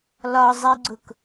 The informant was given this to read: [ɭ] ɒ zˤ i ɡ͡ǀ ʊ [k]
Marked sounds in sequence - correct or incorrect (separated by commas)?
incorrect, correct